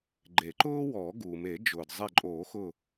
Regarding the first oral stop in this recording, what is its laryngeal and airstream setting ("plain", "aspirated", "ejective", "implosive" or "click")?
click